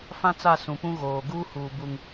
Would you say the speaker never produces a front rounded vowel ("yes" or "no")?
yes